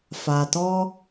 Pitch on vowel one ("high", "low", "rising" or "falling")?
low